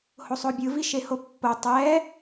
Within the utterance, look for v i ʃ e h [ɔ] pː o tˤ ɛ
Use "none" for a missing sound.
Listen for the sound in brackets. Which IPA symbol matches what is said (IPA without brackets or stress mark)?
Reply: o